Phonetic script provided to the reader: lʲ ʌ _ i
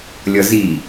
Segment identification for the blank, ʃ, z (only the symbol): z